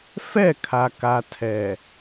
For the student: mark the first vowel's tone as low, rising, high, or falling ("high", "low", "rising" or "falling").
falling